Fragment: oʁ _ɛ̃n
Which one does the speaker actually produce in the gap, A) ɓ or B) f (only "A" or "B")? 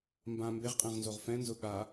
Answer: B